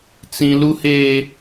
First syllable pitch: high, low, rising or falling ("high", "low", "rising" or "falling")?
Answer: high